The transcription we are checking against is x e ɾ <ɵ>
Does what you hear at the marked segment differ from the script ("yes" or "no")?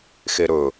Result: no